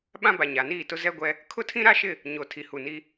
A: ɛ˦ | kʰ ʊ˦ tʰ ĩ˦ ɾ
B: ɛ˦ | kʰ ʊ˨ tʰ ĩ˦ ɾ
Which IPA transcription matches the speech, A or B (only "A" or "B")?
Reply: A